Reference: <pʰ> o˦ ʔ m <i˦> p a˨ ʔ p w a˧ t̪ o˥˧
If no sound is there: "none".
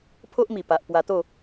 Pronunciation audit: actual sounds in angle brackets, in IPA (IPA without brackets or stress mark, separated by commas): pʰ, i˨˩